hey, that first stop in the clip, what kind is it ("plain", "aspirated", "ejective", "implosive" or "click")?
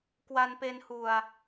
plain